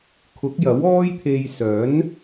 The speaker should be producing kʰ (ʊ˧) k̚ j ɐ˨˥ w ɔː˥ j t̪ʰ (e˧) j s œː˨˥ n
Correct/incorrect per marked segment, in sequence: incorrect: ʊ˨˥, correct

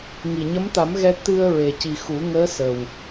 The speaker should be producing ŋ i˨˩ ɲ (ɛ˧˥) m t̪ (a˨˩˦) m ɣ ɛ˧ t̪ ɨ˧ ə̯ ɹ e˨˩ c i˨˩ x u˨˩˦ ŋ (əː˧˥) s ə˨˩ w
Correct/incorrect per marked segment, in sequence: incorrect: ə˧˥, correct, correct

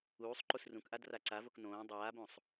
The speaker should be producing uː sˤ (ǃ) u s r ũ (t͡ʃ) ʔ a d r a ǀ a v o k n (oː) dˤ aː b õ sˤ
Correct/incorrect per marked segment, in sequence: correct, incorrect: k, incorrect: õː

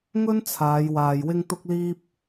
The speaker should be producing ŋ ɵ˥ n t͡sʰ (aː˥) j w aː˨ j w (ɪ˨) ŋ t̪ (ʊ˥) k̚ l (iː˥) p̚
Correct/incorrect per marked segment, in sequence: incorrect: aː˨˧, incorrect: ɪ˥, correct, correct

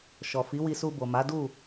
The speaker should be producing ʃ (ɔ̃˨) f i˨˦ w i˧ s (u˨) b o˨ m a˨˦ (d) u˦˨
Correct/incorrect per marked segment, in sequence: incorrect: ɔ˨, incorrect: u˧, correct

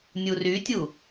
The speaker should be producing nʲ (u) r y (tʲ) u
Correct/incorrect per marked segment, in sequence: correct, correct

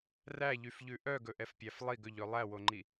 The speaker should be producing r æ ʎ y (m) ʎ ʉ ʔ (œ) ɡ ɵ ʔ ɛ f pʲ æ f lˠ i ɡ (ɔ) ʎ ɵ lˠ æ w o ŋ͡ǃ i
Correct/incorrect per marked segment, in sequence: incorrect: f, correct, incorrect: ɵ

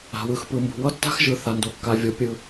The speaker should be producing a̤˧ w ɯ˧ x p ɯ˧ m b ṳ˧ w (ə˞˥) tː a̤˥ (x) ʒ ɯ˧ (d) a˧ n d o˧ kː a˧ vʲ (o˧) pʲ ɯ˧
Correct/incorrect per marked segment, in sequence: incorrect: ʌ˥, correct, incorrect: θ, correct

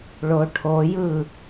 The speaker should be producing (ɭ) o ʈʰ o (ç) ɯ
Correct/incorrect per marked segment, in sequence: correct, incorrect: j

